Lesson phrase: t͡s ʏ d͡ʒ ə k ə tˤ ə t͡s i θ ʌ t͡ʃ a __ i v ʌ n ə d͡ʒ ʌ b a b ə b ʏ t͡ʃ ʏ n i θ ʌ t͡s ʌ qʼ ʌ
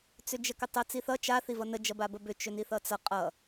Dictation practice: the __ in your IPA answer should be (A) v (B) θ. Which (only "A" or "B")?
B